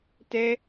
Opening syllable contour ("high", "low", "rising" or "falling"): high